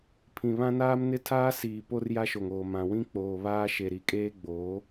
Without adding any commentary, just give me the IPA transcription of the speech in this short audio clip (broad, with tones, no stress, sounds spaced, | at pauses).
pʰ ĩ˨ β ã˦ n aː˦ m n ɪ˦ tʰ aː˦ s iː˨ p o˦ r j a˦ ʃ o˨ ŋ oː˨ m ã˨ w ĩ˦ k͡p oː˨ β aː˦ ʃ e˨ ɾ i˨ kʼ eː˦ ɡ͡b oː˨˦